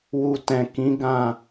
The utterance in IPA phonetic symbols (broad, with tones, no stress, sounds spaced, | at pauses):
w u˨ t ɛ̃˨ k ĩ˨˦ ɡ ã˦˨